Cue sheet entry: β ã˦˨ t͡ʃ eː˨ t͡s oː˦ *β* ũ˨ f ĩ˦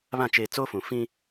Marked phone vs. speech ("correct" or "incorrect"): incorrect